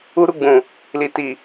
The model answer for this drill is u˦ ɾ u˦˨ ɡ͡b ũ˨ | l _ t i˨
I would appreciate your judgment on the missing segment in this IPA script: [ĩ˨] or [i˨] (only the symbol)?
i˨